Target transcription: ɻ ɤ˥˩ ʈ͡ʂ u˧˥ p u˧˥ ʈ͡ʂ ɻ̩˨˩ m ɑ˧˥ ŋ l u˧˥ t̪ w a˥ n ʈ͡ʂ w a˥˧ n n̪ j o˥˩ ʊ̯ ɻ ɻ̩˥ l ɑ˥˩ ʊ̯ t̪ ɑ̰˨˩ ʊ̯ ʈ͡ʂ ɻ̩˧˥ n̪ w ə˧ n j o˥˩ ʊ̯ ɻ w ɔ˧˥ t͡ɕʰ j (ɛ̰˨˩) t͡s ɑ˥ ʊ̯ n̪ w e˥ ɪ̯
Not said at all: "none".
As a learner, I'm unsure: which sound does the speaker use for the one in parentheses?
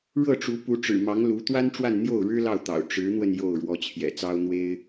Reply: ɛ̰˨˩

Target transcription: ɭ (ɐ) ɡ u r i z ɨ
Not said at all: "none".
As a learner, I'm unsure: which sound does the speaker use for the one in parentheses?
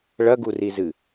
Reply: ɐ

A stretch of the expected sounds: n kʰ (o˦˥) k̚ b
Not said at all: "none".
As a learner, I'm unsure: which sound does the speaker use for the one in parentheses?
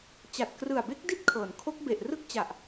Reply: o˦˥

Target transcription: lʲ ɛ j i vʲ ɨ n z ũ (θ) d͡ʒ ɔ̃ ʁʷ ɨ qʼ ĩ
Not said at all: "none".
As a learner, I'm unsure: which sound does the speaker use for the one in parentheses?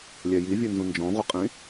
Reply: n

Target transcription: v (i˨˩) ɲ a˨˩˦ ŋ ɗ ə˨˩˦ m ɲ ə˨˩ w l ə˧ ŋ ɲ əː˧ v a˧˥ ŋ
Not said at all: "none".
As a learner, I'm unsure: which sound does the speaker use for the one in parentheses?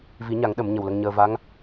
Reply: i˨˩˦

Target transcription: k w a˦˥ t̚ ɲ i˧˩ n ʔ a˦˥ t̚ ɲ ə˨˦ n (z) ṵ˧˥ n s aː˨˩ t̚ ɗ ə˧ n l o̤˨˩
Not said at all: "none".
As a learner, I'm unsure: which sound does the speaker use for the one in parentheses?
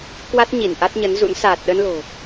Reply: z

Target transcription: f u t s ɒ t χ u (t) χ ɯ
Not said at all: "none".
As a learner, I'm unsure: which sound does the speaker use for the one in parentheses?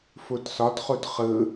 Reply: t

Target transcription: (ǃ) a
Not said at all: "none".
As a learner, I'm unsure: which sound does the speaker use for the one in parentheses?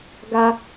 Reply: ɡ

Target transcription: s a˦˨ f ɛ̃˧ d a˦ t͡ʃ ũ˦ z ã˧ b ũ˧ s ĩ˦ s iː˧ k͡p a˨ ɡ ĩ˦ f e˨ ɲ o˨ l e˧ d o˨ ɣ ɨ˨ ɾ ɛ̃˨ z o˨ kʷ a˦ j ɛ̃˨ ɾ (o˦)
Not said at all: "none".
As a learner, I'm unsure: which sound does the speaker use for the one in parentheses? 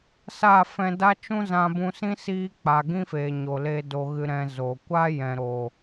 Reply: o˨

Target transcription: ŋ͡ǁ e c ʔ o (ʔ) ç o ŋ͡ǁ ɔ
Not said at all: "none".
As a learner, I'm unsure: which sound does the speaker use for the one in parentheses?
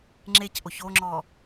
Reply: none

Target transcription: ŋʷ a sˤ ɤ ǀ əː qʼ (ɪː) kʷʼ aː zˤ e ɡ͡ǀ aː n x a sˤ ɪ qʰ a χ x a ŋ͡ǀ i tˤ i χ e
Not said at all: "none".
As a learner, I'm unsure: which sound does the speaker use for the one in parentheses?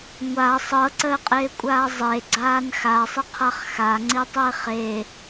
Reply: ɪː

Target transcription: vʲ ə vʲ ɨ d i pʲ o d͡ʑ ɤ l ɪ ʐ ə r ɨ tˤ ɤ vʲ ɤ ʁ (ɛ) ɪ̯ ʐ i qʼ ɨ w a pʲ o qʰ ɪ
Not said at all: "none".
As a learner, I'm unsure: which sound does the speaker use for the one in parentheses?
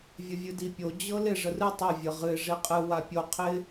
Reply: ɨ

